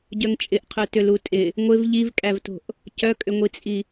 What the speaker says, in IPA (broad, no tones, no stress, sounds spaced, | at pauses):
ɟ œ ŋ t͡ʃʼ ɪ ʔ qʰ œ t ʏ l u tʼ ɪ | ŋʷ ɪ v ʎ i v kʼ æ v t o̤ ʔ | c œ kʼ ʏ ŋʷ i t͡sʼ i